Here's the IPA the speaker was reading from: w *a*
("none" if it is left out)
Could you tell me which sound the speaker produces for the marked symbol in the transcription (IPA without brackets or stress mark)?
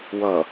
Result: ʌ